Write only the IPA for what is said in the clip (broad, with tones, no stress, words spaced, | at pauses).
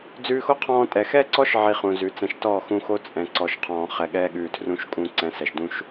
d͡zʉː˧xo˦qʰɔ̃ː˧ tʼɛ˨xɛ˦ǀɔ˦ʃ ʕi˧χũ˨zʉ˨ t͡sɛ̃˨ʃtɔː˦˨xũ˧xo˦ t͡sʼɛ̃˨ ǀɔ˨ʃqʰɔ̃ː˨ χɛ˨ɠɛː˧ɠʉː˨tʰrũ˧ʃ kʼũ˧ǀɛ̃˨˦ sɛ˨ʃdũ˦ʃ